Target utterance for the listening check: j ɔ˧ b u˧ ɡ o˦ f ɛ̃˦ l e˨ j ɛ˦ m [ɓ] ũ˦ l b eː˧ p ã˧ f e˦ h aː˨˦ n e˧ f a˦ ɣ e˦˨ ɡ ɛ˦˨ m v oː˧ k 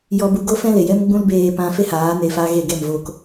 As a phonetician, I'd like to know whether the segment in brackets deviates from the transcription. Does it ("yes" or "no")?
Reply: yes